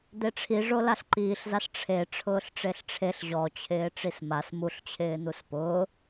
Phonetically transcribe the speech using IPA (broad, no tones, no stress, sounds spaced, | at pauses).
d̪ e ʈ͡ʂʰ i ʐ o l a ɬ ǃ iː ɬ z a s ʈ͡ʂʰ e ʈ͡ʂʰ ʊː ɬ ʈ͡ʂ e ɬ ʈ͡ʂʰ e ɬ ʑ ɔ t͡ɕʰ ɪː ʈ͡ʂ i s m a s m u ɬ t͡ɕʰ ɪː n̪ u s p ʊː